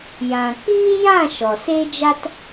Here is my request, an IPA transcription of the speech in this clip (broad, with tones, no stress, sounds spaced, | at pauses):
j ã˨ k͡p iː˦ j ã˦˨ ʃ ɔ˨ s eː˦ d͡ʒ a˦ t